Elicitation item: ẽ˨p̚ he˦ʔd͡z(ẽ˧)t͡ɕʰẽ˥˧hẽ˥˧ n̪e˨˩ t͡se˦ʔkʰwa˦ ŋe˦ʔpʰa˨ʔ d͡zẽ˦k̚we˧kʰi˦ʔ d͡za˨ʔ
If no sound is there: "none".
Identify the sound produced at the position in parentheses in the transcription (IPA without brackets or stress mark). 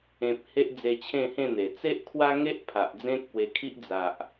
e˧